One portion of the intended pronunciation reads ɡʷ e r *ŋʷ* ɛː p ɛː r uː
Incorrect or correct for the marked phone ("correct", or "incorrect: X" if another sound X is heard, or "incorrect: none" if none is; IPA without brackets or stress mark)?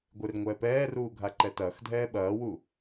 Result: correct